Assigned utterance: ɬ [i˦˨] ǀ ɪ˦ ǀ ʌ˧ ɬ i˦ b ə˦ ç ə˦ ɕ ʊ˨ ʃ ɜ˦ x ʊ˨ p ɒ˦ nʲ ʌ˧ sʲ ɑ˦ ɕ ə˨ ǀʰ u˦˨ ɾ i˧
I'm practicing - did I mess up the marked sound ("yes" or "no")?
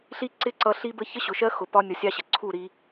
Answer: no